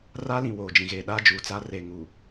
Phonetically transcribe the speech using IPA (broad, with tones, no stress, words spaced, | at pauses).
ra˦lĩ˨ woː˨d͡ʒĩ˨ɣeː˨ ɗaː˦d͡ʒuː˨t͡sa˦ re˨ŋu˨